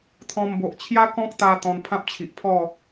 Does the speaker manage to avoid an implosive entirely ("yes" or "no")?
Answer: yes